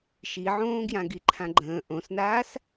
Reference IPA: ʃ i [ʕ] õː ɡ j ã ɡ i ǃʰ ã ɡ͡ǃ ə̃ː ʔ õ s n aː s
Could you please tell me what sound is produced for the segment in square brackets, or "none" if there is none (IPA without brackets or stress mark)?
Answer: ʕ